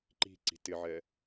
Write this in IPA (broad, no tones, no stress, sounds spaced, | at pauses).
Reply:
ǃ i̤ ǀ i̤ t ɪ ʕ ɛ